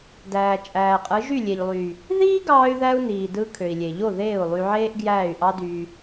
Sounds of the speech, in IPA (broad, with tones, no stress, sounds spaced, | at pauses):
d æː˨ t͡ʃʼ æː˨ qʼ ɯ˨˦ ʒ y˦˨ lʲ e˨ ʎ lˠ y˨ | ð iː˦ ɡ ɑː˧ y̯ ð æ˧ u̯ n iː˨ d ɯ˧ kʰ ø˨ i̯ lʲ e˨ ʎ o˦˨ ð eː˦˨ u̯ lˠ y˧ ʕ eː˦ ʔ ɡ j æː˦˨ y̯ ʔ ɑ˦ d y˧